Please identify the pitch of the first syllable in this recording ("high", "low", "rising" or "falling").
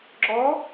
rising